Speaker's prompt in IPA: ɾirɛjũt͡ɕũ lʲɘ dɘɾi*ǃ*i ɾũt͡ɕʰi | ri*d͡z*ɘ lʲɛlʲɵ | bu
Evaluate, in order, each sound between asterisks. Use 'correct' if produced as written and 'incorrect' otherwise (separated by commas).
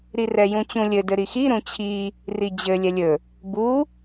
incorrect, incorrect